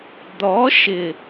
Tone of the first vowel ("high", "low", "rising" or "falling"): rising